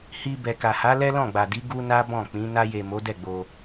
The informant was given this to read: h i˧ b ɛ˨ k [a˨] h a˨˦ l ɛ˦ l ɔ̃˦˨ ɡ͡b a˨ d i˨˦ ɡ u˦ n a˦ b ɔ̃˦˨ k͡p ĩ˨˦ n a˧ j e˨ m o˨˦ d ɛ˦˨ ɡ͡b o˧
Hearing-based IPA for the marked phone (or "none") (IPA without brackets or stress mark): a˨